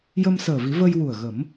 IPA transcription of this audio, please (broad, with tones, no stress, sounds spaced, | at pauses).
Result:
j ə˧ m s əː˨˩ v i˨˩˦ v ə˧ j w u˨˩ ə̯ ɣ ə˨˩˦ m